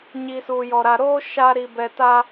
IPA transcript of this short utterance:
ɲi˨suː˨jɔ˨ɾa˨ ɾoː˦ ʃa˦ ɾi˨bɛ˨ta˦

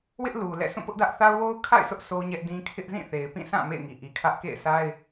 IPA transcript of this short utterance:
wɪ˦ʔ lu˨lɛ̰˦˨ sʰũ˦˨pʊ˦ʔdä˦ʔθa˦ʊ̯ wo˦ʊ̯kʰa̰˦˨ɪ̯sʊ˦ʔ so˦ɲɛ˦ʔdĩ˦ kʰɪ˦ʔ zĩ˦˨θe˨ɪ̯pĩ˦˨sʰã˦˨ mḛ˦˨ɪ̯ŋi˨ʔi˨kʰä˦ʔ kḛ˦˨ɪ̯sʰa˦ɪ̯

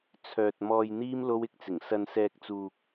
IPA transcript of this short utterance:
t͡sʰœː˨t̚ mɔː˨jn̪iː˧m lo˧wɪ˨k̚t͡sɪ˨˩ŋ sɐ˨nsɛː˨k̚t͡suː˨k̚

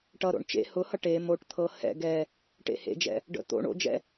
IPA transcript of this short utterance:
ʈʌɾo̰ɳ t͡ʃḛ hʊhʌ ʈe moʈ t̪ʰɤ hɛ̰ ɡɛ | ʈḛhḛd͡ʒɛ̰ | ɖə̰ t̪o̰ ɳo̰d͡ʒɛ̰

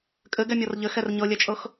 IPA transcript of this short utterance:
kʼɘɡɛmʲɔr ʎɘxɛr ɲɤlʲɛt͡ʃʼɤx

